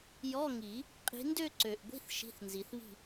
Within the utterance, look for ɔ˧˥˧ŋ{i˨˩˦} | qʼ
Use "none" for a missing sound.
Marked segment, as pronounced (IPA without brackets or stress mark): i˨˩˦